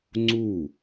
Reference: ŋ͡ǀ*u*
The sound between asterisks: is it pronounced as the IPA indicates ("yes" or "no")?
yes